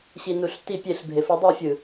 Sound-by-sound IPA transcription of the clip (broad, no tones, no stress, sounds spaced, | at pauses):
ɕ i n u ɬ t i pʲ e ɬ bʱ e f ɯ dˤ i fʲ ɯ